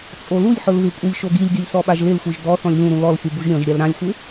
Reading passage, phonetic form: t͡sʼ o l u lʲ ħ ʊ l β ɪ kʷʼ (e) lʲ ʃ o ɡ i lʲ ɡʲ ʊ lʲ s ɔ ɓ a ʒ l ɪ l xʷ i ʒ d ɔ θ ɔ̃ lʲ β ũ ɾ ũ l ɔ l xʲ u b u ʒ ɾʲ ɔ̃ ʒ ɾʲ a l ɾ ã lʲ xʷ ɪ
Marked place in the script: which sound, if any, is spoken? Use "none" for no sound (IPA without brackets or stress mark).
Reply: i